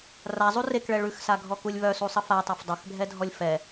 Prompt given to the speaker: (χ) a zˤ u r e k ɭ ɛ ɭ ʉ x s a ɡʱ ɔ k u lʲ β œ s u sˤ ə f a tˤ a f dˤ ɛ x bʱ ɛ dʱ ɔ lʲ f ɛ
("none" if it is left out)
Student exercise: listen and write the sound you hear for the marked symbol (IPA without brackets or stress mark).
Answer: r